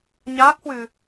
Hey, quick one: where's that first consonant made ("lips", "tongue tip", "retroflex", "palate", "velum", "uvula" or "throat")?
palate